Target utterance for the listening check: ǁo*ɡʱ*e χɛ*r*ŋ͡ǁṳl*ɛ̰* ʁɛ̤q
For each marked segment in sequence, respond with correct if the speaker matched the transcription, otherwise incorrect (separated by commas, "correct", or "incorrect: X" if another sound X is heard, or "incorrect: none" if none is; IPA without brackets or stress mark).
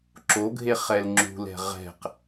correct, incorrect: l, incorrect: ɛ̤